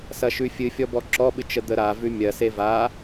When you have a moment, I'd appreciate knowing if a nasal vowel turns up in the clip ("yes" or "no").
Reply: no